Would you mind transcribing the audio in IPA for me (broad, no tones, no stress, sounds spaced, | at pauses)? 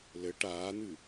l ɘ ʈ aː n̪ ɨ